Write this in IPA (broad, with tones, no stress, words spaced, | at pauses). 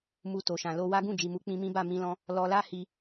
mu˧to˨ʃã˨ lo˧ wa˦ ɡũ˦˨d͡ʒi˨mu˨˦ k͡pĩ˧mĩ˦ba˦˨ mĩ˧lɔ̃˧ | lɔ˧la˦ hi˧